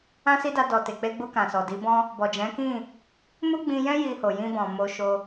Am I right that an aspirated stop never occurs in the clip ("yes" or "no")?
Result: yes